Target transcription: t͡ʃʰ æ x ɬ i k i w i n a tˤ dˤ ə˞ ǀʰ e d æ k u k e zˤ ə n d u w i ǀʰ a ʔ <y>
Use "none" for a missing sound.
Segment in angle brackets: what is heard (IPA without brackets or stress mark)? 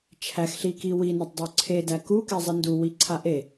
e